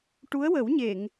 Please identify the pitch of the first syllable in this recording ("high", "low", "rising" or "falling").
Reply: rising